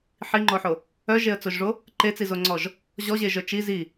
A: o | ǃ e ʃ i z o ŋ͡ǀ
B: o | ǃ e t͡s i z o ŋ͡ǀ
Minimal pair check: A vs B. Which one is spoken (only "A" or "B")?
B